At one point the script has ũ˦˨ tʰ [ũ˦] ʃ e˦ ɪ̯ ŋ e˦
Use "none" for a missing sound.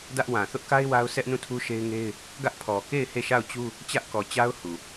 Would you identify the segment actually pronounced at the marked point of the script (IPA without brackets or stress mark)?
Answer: u˦